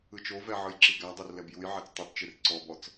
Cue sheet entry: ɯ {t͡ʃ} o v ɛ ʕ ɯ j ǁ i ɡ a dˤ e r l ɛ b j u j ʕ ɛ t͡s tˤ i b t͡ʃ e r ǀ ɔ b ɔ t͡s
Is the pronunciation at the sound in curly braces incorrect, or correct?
correct